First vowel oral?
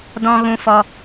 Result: no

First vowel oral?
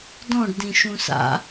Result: no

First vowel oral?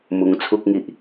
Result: yes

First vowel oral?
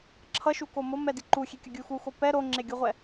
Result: yes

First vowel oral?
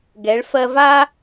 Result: yes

